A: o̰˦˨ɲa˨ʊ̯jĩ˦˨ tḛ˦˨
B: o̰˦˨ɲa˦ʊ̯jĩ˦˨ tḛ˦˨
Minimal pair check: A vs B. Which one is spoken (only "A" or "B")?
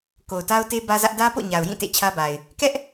A